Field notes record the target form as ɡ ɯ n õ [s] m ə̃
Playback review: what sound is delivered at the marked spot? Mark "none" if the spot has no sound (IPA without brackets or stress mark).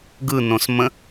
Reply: s